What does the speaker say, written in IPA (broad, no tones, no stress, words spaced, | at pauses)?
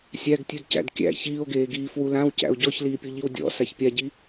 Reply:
sʲæɡ tʲʉdcæ̰dkʲæ̰ çiːo̯ɡeːɡiː fwulãwcæ̰o̯ ɟɔçliːpʲoʎiw dʲɔ̰ saçpʲaɟi